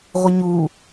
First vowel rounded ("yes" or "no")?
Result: no